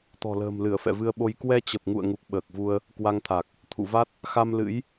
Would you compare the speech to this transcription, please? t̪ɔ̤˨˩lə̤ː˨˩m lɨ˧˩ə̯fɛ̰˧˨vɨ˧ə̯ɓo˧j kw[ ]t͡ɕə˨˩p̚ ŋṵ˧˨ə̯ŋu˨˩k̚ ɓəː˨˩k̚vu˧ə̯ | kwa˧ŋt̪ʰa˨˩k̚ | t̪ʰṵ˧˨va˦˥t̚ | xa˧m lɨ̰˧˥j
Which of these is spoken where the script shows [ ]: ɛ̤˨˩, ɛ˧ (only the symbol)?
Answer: ɛ˧